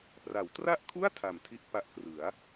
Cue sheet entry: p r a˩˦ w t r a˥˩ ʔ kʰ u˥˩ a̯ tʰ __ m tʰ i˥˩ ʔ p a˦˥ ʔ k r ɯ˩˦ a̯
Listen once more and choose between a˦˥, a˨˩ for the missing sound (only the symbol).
a˨˩